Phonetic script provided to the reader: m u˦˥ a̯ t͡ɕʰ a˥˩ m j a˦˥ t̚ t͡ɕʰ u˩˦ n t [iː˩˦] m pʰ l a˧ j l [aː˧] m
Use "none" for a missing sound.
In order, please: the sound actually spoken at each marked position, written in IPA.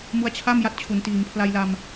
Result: iː˩˦, a˧

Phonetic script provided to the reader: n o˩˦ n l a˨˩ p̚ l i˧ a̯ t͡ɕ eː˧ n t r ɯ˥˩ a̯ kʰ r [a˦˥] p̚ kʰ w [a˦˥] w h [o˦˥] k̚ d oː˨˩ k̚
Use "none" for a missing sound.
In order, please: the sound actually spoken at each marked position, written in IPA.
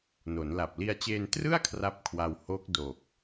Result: a˥˩, a˧, o˦˥

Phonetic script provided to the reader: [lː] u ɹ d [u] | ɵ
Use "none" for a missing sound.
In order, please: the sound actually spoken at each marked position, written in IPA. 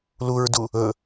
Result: l, u

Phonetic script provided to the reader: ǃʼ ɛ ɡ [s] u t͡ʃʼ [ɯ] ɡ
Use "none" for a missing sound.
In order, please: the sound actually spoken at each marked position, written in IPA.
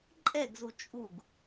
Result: z, u

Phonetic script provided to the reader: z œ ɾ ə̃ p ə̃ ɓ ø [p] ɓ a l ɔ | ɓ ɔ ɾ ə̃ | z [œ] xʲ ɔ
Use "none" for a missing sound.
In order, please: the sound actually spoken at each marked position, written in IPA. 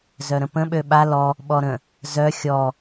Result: none, œ

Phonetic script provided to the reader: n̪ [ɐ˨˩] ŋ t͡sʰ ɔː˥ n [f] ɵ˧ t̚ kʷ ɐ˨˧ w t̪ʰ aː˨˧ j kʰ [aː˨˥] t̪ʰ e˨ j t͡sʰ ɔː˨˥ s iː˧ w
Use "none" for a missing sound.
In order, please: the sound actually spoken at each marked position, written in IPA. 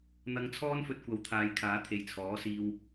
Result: ɐ˧, f, aː˨˥

